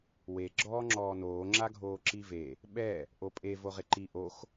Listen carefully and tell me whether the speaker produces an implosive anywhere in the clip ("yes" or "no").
yes